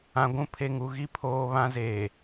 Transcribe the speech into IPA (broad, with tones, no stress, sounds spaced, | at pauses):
ã˨ ɡʷ ũ˦ pʰ e˦ ŋ u˦ ɣ i˦ pʰ oː˦ β ã˦ z eː˨